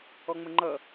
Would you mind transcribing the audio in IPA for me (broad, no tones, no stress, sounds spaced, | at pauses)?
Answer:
ɔ ŋ͡m ə ŋ͡ǃ ʌ